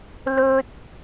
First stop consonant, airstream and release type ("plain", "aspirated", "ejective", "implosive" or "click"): plain